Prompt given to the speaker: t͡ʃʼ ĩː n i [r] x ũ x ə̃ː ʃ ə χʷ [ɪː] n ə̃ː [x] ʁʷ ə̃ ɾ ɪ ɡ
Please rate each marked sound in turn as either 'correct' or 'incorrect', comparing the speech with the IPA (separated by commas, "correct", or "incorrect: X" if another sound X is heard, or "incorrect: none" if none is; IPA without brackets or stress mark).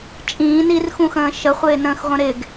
correct, correct, correct